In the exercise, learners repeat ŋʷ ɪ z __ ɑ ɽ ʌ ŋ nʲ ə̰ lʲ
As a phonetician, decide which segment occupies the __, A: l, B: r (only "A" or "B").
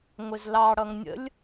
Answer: A